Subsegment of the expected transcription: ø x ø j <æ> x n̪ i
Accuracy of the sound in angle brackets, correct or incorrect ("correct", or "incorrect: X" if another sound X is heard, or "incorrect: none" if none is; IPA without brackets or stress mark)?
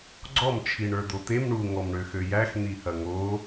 correct